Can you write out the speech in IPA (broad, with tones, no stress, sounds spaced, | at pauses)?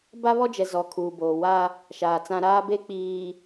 b a˦ β ɔ˦ d͡ʒ ɛ˨ z ɔ˨ kʰ uː˨ b oː˨ w a˦ | ʃ aː˨ t͡s ã˦ ɾ aː˦ b e˦ k͡p iː˨